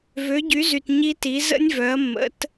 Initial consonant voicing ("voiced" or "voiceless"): voiced